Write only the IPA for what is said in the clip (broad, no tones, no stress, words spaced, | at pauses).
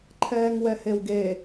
ǃʰɛːŋwɛhewɡe